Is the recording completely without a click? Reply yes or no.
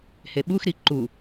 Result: no